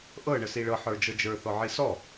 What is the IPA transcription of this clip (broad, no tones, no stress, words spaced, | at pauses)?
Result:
ʔɤ ɳəsiɭɤ ħə˞d͡ʒɤd͡ʒə˞ θɔʕisɔ